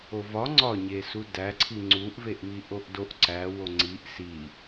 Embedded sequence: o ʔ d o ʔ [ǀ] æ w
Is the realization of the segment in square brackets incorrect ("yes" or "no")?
no